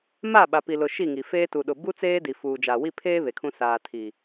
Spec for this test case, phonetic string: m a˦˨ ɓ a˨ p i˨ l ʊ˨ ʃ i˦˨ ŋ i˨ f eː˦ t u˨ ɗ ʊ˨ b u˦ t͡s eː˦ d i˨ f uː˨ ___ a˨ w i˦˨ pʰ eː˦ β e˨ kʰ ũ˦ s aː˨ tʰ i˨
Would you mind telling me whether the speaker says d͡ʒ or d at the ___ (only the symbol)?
d͡ʒ